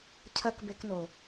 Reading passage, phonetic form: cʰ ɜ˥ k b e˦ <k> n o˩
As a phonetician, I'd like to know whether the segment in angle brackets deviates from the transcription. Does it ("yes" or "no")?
no